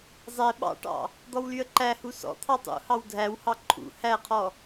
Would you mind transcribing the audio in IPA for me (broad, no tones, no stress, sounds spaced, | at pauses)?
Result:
zˤ ɛ ɓ ɑ̰ ʈ ɑ̰ | d̪ ɔ w l y ə̯ ǃ æ h u s ɔ̰ t̪ʰ ɑ tˤ ṵ h ɑ w dʱ æ w h ɑ ǃʰ ṵ h æ qʰ ɔ